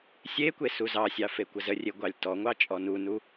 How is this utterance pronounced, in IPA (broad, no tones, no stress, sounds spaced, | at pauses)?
sʲ e kʷ e s u z ɑ sʲ ɑ f e kʷ ə z ə rʲ e ɡʷ ɑ lʲ t ɔ ŋʷ ɑ t͡ʃʼ ɔ n u n u